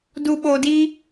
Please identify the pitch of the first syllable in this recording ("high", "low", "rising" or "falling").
low